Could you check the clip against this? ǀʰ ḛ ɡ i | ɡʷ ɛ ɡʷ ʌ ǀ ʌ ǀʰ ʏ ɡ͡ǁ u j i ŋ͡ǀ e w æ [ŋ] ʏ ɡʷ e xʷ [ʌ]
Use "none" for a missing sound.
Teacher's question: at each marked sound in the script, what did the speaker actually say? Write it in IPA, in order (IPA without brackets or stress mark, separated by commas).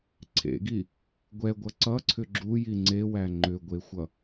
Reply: ŋ͡ǃ, ʌ